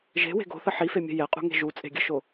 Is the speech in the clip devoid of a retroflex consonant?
yes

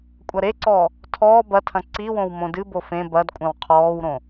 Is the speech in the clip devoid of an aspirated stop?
no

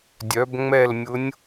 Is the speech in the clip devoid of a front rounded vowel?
no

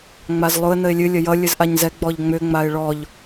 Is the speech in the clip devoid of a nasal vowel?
yes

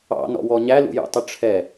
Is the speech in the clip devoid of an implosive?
yes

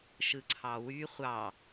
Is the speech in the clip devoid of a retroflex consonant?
yes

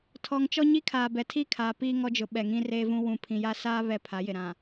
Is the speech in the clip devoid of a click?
yes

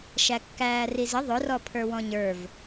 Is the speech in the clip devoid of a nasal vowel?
no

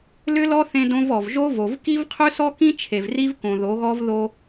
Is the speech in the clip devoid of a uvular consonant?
no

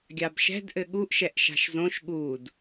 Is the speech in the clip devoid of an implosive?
no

